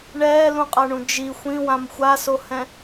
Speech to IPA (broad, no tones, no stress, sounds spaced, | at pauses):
ɳ ɛː l ũ qʼ a ɳ ũ d͡ʒ i xʷ ĩ w ã m xʷ a s o h ɛ̃